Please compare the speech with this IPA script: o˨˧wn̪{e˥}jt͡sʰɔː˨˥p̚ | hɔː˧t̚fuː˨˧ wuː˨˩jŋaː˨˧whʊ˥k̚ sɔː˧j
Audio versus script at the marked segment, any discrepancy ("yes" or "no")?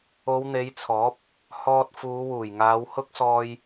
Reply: yes